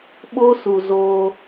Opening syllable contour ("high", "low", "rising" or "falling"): high